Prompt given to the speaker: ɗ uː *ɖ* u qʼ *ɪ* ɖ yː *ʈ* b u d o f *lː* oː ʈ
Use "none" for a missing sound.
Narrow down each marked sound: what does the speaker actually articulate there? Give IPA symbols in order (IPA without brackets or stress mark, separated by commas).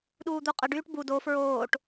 d̪, ə, ʈ, ɹ